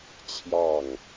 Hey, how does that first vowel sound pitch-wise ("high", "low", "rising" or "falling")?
falling